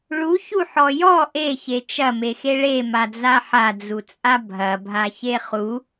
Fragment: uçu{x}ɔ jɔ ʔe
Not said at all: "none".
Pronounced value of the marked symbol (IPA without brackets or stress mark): ħ